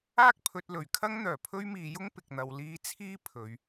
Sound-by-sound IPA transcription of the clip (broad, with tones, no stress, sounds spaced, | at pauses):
aː˥ k̚ pʰ ɵ˨ t̚ l ɵ˨˩ ɥ kʰ ɐ˥ ŋ n̪ œː˨˩ pʰ ɵ˥ ɥ m iː˨˧ j ʊ˥ ŋ p ɪ˨ k̚ n̪ ɐ˨ w l iː˧ t͡sʰ iː˥ pʰ ɵ˨˧ ɥ